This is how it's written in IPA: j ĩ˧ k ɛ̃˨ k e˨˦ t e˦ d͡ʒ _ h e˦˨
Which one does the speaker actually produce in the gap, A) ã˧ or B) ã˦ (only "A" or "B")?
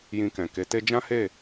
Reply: B